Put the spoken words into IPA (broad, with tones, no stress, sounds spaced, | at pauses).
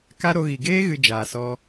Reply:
k a˦ ɾ o˧ ɣ i˨ ɡ eː˦ ɣ ɨ˧ d͡ʒ aː˨ s ɔ˧